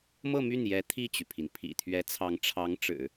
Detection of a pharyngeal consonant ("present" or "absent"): absent